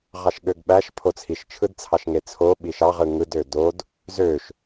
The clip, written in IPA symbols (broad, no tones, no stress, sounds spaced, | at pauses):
ʁ ɑ ʃ ɠ ø ɡ ɓ æ ʃ pʰ o t͡sʰ i ʃ t͡ʃʰ ɯ d t͡sʰ ɑ ʃ ŋ e t͡sʰ o ɓ i ʃ ɑ ʁ ɯ ŋ ɯ d ø d o d | z ø ʃ